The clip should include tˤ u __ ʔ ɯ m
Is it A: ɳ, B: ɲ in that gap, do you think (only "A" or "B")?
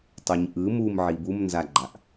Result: B